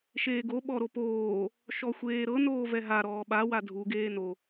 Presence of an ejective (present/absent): absent